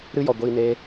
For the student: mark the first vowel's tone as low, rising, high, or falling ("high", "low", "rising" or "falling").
high